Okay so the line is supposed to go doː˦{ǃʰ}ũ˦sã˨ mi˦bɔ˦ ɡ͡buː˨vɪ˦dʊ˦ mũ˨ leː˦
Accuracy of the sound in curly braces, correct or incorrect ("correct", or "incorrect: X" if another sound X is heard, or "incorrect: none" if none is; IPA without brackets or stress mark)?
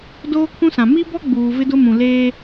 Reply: incorrect: kʰ